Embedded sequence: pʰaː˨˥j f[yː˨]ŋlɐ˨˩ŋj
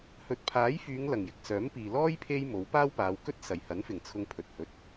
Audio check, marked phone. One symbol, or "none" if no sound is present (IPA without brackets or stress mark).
yː˨˧